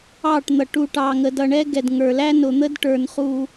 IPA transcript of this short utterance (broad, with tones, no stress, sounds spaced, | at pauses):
ɑ˦˨ ʈ n̪ ʌ˨ ʈ u˨ ʈ ɑ˨ ŋ ə˨ d ʌ˨ ɳ ɛ˦ ɡ ɛ˨ d ŋ ə˞˨ l æ˦ n ʊ˨ n̪ ə˦ d ʈ ə˞˨ n χ u˦